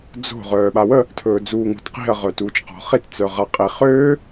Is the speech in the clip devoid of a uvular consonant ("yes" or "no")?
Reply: no